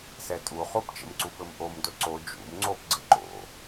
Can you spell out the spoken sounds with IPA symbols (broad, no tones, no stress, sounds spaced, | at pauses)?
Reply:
s ɛ tʼ u χ u p t͡ʃ ə̰ m ǀ u p ɘ m ʔ o m d ɵ ǀ o d͡ʒ ṵ m ŋ͡ǀ o p ɡ͡ǀ ə ǃ o̰